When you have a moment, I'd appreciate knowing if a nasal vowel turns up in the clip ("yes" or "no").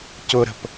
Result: no